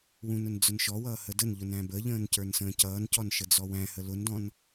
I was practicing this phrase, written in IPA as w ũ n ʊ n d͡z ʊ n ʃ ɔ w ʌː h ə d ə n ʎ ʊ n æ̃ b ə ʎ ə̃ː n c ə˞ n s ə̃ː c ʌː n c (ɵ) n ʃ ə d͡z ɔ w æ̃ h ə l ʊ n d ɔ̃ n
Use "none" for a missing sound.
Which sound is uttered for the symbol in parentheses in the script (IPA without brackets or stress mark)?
ɔ